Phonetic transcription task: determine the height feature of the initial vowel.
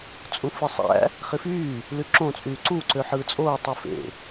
high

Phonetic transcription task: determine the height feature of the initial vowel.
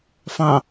low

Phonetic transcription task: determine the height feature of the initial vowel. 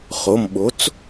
mid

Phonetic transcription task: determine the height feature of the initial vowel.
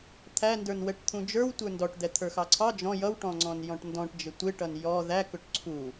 low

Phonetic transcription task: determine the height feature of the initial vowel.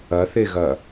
low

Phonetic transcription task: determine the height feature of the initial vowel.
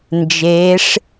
mid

